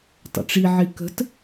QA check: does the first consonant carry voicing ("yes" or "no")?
no